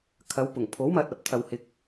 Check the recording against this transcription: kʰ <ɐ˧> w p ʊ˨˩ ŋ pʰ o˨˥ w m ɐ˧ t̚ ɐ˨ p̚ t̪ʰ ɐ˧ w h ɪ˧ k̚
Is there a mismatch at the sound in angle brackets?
yes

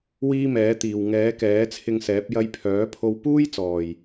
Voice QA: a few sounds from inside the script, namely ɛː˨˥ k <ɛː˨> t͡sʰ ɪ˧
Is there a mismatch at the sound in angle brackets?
yes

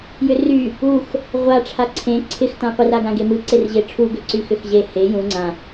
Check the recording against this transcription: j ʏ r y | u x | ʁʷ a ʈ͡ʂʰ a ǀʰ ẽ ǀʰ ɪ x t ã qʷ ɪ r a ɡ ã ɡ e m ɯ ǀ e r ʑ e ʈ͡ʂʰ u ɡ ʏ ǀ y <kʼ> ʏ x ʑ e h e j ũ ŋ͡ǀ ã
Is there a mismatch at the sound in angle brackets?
yes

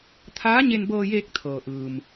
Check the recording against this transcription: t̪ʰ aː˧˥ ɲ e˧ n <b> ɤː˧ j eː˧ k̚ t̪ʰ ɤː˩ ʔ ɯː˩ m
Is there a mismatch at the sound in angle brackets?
no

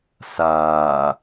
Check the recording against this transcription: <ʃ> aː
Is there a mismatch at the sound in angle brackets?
yes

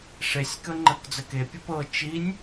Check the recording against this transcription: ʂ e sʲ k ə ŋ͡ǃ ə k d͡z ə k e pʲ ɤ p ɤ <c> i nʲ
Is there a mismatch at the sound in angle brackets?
yes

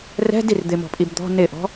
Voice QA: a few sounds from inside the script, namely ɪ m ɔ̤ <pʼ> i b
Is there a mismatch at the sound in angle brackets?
no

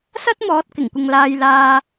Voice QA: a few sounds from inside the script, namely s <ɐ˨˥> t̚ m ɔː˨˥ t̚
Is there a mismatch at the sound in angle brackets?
yes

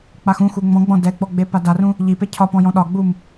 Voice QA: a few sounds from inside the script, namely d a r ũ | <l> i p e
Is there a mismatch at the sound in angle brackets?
yes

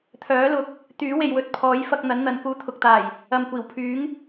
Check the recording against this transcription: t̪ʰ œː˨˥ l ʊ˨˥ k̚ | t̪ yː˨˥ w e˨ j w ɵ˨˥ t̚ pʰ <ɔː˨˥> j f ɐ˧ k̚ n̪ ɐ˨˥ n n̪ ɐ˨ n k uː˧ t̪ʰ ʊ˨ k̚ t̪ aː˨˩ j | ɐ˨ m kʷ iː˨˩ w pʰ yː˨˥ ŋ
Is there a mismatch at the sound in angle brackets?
no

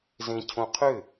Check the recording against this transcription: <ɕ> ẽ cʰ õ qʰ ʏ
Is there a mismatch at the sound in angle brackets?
yes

